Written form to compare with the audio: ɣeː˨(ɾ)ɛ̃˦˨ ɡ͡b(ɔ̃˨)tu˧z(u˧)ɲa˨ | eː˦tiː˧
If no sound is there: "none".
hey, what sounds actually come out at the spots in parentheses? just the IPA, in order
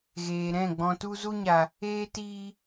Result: ɾ, ɔ̃˨, u˧

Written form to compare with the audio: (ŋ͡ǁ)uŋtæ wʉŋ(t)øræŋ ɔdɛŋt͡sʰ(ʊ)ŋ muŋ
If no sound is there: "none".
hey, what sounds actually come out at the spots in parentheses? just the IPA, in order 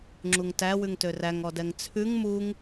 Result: ŋ͡ǁ, t, ʉ

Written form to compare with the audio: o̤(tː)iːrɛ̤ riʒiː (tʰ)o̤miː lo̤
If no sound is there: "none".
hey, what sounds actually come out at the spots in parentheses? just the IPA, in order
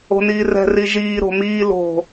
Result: n, ɾ

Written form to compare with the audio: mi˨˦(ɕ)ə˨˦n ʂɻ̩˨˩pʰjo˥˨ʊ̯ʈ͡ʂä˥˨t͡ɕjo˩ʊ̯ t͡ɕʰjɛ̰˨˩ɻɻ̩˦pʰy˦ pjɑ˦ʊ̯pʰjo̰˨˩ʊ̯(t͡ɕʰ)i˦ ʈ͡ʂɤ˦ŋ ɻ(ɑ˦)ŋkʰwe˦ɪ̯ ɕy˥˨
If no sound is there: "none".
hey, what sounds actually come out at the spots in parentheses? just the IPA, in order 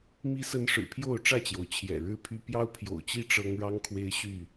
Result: s, t͡ɕ, ɑ˦

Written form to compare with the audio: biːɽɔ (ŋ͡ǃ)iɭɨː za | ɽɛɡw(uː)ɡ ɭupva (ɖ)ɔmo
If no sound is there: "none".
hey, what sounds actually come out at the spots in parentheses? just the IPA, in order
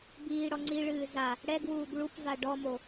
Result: ŋ͡ǀ, uː, ɖ

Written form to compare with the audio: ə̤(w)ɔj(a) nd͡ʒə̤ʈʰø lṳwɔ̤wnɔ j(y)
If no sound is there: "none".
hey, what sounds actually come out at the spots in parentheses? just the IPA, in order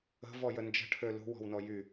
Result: v, ə, y

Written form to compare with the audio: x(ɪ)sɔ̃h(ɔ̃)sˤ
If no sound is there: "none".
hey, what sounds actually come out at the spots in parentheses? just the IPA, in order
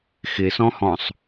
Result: ɪ, ɔ̃

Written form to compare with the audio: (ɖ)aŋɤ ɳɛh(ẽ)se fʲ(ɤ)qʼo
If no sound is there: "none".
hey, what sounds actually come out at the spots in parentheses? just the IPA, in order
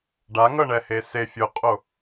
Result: ɖ, e, o

